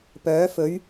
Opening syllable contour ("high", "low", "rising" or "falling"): rising